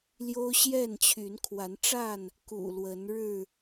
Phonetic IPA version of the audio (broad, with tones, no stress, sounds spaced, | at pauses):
l j o˦ ʊ̯ ɕ j ɛ˥˨ n t͡ɕʰ y˨˦ n kʰ w a˨˦ n ʈ͡ʂ a˥˨ n | k ṵ˨˩ l w ə˨˦ n ɻ ɻ̩˥˨